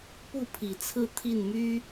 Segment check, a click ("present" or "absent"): absent